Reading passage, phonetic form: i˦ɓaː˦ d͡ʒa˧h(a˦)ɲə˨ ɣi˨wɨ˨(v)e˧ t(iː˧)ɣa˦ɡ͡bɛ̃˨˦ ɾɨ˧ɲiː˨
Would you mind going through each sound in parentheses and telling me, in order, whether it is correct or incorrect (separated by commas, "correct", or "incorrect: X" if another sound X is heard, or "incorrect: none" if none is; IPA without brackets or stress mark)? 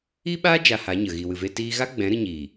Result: incorrect: a˨˦, correct, correct